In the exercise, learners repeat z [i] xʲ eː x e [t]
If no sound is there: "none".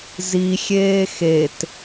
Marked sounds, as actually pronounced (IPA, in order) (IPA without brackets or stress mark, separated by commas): i, t